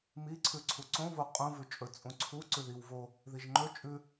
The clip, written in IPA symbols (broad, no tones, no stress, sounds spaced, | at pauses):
m i ǀʰ ʉ ǀʰ u ǀ õ v o qʼ ũ v ʉ t͡ʃʼ ɵ t͡sʼ ũ ǀʰ u ǀ ʉ ð i w v o | ð i ʒ ŋ͡ǃ ɵ t͡ʃʼ ʉ